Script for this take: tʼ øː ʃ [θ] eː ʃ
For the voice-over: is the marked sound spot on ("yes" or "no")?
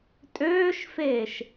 no